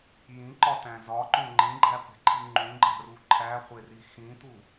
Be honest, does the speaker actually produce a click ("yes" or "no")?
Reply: yes